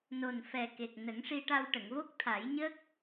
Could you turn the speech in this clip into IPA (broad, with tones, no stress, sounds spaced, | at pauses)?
n o˨˩ n f ɛ˨˩ k e˨˩ k̚ n ə˨˩˦ ŋ ʂ i˧ ʈ a˧ w ʈ ə˨˩˨ ŋ v o˦˥ k̚ t̪ʰ a˨˩˦ j ɲ əː˦˥ k̚